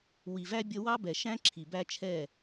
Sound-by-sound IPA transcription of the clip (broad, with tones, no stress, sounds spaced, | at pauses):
w i˨ v æ˦ bʲ ʌ˦ w ɑ˦ b ɛ˨ ʃ æ̃˦ ǁʰ i˨ b æ˦ t͡ʃʰ ɛ˦˨